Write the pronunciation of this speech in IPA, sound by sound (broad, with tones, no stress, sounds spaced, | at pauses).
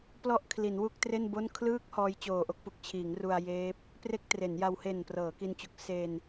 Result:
p l ɔ˥˩ ʔ kʰ l i˩˦ n w u˥˩ k̚ t r e˥˩ n b o˥˩ n kʰ l ɯː˦˥ k̚ h ɔː˦˥ j t͡ɕ oː˨˩ ʔ o˥˩ k̚ p u˨˩ k̚ t͡ɕʰ iː˩˦ ŋ r u˧ a̯ j eː˦˥ p̚ | p r e˥˩ k̚ t r e˩˦ n j a˧ w h e˨˩ n p r ɤː˩˦ k i˧ n t͡ɕ u˨˩ k̚ s e˧ n